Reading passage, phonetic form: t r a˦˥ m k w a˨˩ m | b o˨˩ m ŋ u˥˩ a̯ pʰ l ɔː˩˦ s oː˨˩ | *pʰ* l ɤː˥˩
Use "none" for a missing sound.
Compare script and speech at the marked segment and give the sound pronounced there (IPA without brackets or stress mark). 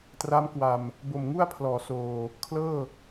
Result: kʰ